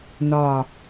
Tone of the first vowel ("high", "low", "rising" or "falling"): low